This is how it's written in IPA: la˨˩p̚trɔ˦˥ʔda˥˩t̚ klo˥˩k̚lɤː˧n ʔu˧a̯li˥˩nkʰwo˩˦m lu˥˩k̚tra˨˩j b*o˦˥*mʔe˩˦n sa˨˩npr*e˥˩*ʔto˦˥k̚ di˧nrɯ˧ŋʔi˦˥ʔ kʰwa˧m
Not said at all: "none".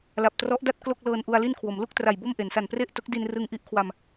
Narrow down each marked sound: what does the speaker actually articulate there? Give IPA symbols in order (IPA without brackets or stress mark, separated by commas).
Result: o˥˩, e˥˩